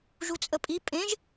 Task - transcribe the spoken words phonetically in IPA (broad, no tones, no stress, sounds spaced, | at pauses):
ʒ u t͡sʼ ə pʼ i pʼ ẽ ʒ